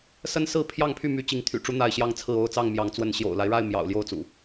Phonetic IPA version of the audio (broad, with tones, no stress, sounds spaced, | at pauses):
s ə˦ n s ɹ̩˥˨ pʰ j ɑ˥˨ ŋ pʰ y˥˨ m y˨˦ t͡ɕ i˨˦ ŋ t̪ʰ y̰˨˩ ʈ͡ʂ u˨˦ n̪ a˥˨ ɪ̯ ɕ j ɑ˦ ŋ t͡sʰ ɹ̩˥˨ o˥˨ ʊ̯ t͡s ɑ˥˨ ŋ m j ɑ˨˦ ŋ t͡s w ə˨˦ n ɕ j o̰˨˩ ʊ̯ l a˦ ɪ̯ ɻ a˥˨ ɪ̯ m j ɑ̰˨˩ ʊ̯ l j o˥˨ ʊ̯ t͡s ṵ˨˩